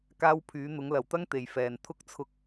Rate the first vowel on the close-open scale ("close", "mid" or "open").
open